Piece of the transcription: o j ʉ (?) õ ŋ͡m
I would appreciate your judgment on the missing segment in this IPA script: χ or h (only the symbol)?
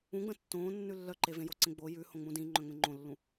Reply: h